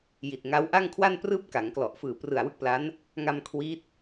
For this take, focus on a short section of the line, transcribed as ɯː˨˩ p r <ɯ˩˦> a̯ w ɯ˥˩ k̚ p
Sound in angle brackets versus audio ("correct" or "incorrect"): incorrect